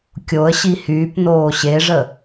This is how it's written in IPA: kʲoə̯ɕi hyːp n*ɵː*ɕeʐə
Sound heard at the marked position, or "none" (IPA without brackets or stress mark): oː